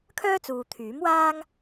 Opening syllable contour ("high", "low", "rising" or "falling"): high